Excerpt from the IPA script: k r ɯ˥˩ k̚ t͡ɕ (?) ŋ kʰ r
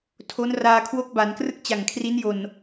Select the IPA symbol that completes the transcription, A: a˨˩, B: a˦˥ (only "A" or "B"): A